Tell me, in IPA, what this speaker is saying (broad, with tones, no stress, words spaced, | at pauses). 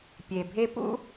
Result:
pʲe˨bʱe˦pṵ˦